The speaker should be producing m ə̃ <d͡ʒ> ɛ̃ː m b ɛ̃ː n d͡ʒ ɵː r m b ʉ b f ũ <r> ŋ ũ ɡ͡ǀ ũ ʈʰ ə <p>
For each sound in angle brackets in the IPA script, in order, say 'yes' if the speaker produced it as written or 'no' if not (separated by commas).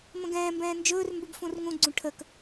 no, yes, no